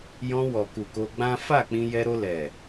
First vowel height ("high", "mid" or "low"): mid